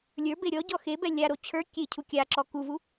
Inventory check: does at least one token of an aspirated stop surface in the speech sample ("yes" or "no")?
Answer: yes